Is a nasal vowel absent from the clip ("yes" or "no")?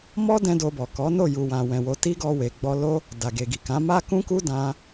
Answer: no